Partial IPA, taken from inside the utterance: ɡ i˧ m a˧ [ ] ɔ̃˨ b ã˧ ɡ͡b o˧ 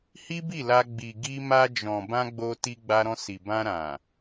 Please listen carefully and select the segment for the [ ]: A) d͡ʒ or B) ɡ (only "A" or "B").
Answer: A